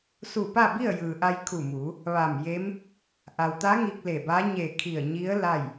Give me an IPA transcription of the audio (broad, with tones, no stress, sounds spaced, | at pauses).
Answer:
s u˧˩ p a˥˨ b i˥˨ ə̯ j ɯː˩ ʔ a˧ j kʰ u˧˩ m uː˩˧ | ʋ a˧˩ m j e˧˥ m | ʔ a˩ w t̪ a˧˥ ŋ i˧ k̚ l e˧˩ b a˧˥ ɲ e˧˩ kʰ i˧˩ ə̯ ɲ i˧˥ ə̯ l a˥˨ j